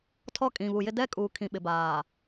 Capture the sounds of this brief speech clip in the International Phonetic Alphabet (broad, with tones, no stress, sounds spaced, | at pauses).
tʰ ɔ˦˨ kʼ ĩ˨ β u˨ j ɪ˦ d ɛ˦ kʼ uː˨ kʰ ĩ˨ ɓ ɪ˨ b aː˨